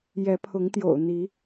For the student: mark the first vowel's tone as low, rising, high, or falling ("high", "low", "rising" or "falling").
rising